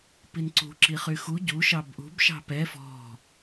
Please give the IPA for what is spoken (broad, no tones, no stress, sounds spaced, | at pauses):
p i n ǀ ṳ ǁ i χ y x u ɟ u ʃ ɑ b ʔ ṳ b ʃ ɑ̤ p ɛ f ɔ̤